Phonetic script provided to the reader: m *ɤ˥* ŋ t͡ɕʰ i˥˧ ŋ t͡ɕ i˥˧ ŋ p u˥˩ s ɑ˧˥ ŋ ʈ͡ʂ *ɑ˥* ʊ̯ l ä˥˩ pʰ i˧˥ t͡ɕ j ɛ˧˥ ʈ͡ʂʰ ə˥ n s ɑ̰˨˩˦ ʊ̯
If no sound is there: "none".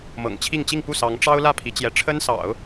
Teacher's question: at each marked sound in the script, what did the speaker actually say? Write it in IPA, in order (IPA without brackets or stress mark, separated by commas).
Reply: ɤ̰˨˩, ɑ˥